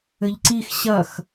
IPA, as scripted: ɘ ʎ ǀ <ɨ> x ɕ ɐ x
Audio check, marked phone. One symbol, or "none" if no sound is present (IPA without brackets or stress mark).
i